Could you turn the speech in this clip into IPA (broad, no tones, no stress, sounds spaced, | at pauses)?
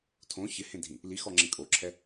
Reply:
tʰ õ ç ɪ h ẽ dʱ ĩ | l i x ɔ ŋ͡ǁ ẽ kʼ o ǁʰ ɛ